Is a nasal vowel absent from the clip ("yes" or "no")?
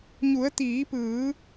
yes